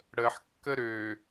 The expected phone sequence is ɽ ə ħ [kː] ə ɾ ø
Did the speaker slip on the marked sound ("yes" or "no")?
no